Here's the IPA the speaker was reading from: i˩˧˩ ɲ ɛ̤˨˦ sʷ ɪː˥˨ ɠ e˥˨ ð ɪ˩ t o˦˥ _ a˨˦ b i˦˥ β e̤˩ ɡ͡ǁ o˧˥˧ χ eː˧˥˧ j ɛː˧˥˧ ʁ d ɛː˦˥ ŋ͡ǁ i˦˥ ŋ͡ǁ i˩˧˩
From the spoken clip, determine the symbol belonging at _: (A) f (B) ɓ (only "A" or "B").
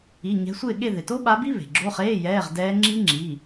B